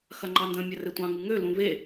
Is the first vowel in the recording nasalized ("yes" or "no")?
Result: no